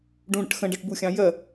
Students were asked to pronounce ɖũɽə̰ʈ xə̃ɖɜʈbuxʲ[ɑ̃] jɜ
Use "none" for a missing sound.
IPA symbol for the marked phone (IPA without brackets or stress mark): ɑ̃